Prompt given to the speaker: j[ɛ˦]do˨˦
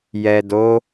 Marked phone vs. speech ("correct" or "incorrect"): incorrect